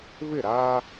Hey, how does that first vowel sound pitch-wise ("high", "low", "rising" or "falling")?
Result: falling